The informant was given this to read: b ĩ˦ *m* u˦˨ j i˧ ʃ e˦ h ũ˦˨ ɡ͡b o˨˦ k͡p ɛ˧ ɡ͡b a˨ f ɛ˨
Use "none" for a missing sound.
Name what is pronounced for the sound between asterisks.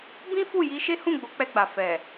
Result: f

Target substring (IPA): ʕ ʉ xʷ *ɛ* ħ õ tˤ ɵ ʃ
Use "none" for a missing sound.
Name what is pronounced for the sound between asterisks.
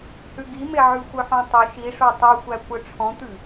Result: œ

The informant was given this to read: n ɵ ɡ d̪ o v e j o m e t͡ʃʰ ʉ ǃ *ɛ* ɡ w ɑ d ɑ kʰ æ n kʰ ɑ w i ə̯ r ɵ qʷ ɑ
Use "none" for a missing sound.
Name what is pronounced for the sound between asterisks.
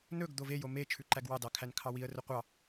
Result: æ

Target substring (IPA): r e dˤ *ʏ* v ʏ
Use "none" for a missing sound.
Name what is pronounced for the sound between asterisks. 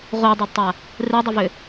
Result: ʏ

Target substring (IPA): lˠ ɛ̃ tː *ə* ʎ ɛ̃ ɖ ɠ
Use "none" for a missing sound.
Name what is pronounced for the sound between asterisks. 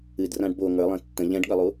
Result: ə̃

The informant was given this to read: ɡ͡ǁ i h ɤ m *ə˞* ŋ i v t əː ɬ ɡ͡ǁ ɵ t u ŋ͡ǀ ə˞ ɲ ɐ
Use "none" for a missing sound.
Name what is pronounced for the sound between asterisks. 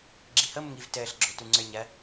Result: ə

